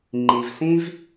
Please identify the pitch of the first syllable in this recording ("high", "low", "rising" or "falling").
low